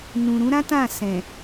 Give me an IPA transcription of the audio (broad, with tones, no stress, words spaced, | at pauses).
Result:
nũ˨ɾũ˨˦ɾã˦ tã˦˨ sɛ̃˨